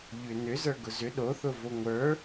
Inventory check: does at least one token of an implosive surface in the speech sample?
yes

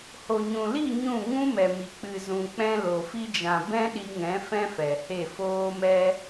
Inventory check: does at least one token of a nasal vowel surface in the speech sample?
yes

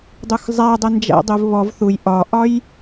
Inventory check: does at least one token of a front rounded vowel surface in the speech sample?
no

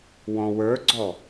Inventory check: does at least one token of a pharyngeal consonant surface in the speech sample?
no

